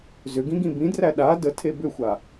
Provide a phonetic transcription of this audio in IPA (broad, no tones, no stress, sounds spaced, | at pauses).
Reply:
z ʏ ɡ ĩ ɡ ĩ b ĩ d r æ ɗ a d ə tʰ e b ʏ xʷ a